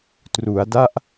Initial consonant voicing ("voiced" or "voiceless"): voiceless